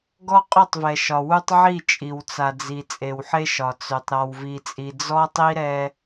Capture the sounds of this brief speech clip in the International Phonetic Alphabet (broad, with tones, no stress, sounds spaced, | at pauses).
ɡ ɔ˦ qʼ ʊ˦˨ tˤ v ɛ˨ ʃ ɒ˨ w u˦ tˤ ʕ i˦˨ t͡ʃʼ i˨ w t͡s a˨ d͡z i˨ t͡sʼ e˨ w ħ e˦ ʃ ɒ˨ t͡s ø˨ tˤ ɾ ɒ˨ w v i˨ t͡sʼ i˨ d͡z ɔ˦ tˤ i˦ ɾ ɛ˦